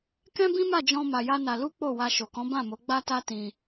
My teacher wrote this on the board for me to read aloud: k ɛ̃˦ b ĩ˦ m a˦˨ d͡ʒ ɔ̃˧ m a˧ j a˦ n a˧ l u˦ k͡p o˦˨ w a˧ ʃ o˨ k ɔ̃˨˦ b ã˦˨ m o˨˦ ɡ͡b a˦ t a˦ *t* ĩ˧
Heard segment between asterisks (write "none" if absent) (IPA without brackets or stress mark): t